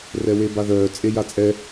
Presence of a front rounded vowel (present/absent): present